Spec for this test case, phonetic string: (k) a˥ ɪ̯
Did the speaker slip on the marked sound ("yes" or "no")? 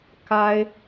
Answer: no